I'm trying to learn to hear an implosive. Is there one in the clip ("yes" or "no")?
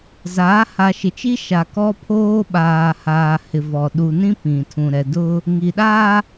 yes